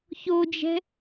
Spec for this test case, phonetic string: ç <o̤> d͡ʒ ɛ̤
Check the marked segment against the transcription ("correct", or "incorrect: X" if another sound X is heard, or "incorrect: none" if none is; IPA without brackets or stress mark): incorrect: o